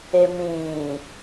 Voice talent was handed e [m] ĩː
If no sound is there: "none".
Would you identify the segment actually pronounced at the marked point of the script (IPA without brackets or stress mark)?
m